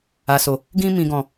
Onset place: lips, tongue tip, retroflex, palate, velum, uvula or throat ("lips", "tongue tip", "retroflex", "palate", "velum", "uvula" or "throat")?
tongue tip